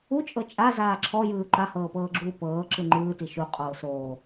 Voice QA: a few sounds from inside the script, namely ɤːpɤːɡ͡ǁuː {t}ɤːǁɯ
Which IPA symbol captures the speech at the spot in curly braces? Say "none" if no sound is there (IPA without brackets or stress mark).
p